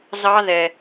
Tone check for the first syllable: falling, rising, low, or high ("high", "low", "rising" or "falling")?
high